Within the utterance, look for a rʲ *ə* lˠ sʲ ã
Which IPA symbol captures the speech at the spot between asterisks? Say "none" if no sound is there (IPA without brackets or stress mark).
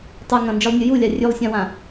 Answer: ʉ